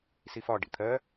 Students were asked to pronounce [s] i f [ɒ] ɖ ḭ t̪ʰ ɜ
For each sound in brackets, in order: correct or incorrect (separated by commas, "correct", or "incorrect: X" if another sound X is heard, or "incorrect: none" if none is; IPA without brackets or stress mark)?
correct, correct